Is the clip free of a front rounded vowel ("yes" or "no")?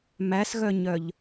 no